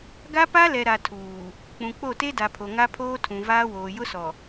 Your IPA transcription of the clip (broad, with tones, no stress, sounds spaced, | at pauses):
ɡ a˦ p a˦ l ɛ˨ ɾ a˨ tʰ uː˨ | k͡p ũ˨ k͡p o˦˨ t e˦ d a˨ pʰ o˨ ŋ a˦ pʰ oː˦ tʰ ũ˨ v aː˦ w oː˨ j ʊ˦ s ɔ˨